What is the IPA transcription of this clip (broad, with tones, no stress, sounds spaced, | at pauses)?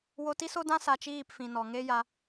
w o˧ t i˦ s o˦ d ã˦ s a˧ t͡ʃ iː˦˨ p f ĩ˨ n ɔ˨ ŋ e˦ j a˧